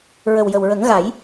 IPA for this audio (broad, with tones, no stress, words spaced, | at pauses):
ɹə˨˩wjə˨˩wɹə˨˩˦ŋɣa˨˩˦j